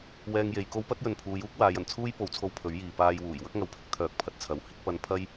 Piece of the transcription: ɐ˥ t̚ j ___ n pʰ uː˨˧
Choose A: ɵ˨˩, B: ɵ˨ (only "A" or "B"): B